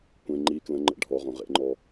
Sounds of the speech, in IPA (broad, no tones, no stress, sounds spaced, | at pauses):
kʷ ẽ ŋ͡ǃ i k l ə̃ ŋ͡ǃ ə̰ ɖʱ ɔ ʁ õ ʁ ḛ ŋ͡ǃ ɔ